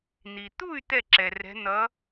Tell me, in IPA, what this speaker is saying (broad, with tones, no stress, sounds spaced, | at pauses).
n̪ i˩ t̪ u˥˩ y̯ t̪ ɛ˥˩ ǁ ɛ˩ r ɛ̤˨˥ n̪ ʌ˨˥